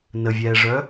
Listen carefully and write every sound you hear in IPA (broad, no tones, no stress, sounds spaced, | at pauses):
n ə vʲ ɛː ʐ œ